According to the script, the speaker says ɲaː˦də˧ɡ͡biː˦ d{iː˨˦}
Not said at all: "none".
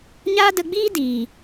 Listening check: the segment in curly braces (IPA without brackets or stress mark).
iː˨